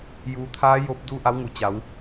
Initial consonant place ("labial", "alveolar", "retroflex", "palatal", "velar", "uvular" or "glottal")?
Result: palatal